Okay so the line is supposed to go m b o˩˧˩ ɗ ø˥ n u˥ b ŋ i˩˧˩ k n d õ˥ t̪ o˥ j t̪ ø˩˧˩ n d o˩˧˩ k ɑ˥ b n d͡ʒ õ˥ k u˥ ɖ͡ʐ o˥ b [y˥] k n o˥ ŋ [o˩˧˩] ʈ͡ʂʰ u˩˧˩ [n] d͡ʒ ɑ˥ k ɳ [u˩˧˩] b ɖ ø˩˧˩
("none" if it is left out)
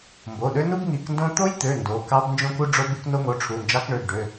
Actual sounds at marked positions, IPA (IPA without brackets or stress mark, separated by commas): y˥, o˩˧˩, n, ø˩˧˩